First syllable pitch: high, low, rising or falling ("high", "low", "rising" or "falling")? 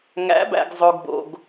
rising